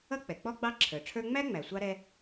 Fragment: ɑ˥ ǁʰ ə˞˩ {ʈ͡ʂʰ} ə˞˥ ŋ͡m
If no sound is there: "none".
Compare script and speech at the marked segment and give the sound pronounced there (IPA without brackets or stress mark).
ʈ͡ʂʰ